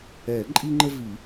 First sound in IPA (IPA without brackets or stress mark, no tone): ɛ